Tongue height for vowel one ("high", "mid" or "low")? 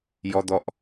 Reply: mid